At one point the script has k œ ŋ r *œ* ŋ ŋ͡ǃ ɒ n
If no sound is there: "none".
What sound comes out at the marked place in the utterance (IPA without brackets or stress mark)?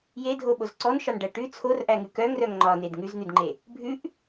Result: œ